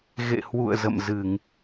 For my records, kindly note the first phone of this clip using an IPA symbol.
ɣ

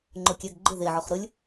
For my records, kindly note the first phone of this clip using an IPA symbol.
ŋ͡ǃ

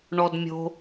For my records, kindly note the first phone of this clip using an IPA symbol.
ɳ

